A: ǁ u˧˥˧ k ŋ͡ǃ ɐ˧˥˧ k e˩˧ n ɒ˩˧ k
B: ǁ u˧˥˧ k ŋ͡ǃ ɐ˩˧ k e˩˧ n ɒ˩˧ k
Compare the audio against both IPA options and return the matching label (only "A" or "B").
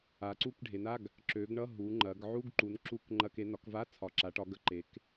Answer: A